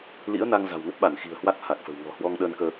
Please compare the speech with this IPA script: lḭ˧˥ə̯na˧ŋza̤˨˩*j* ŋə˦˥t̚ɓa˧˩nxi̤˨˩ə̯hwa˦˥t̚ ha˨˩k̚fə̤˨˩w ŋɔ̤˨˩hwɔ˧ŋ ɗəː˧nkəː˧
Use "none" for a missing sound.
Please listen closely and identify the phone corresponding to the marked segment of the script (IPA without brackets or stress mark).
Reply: w